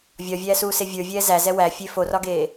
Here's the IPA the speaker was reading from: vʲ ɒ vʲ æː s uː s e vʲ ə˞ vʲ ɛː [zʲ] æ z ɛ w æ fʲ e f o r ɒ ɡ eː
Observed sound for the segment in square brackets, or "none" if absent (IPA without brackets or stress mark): z